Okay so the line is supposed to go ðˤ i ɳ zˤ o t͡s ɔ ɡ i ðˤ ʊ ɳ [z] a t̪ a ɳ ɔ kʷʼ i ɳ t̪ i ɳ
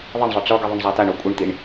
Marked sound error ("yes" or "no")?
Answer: yes